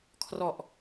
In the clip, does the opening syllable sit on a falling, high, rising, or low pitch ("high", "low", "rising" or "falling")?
low